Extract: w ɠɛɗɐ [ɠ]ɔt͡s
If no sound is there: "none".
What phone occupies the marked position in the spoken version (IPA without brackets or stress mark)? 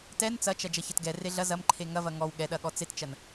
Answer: ɠ